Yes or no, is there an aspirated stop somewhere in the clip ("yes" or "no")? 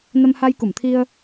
yes